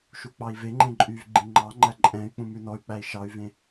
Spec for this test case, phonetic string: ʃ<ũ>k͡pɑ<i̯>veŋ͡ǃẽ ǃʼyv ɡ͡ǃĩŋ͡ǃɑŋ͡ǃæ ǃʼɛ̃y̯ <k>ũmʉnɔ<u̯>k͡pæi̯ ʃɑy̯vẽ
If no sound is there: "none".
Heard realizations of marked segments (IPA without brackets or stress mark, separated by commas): u, i̯, k͡p, y̯